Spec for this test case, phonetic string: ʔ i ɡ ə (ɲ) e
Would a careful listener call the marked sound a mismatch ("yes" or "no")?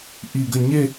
no